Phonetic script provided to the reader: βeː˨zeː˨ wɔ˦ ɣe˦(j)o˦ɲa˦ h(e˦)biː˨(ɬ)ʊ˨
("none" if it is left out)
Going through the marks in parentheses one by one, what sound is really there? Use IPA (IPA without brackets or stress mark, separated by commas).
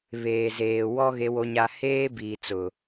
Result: w, eː˦, t͡s